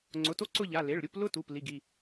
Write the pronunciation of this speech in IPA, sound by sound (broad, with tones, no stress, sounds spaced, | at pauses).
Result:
ŋ͡ǀ ʊ˩˧˩ t o˥ ǀ ʊ˥˧ ʎ a˩˧˩ l e˩˧˩ ɭ ɾʲ u˥˧ p l ʊ˥ t u˩˧˩ p l i˩˧˩ ɡ i˩˧˩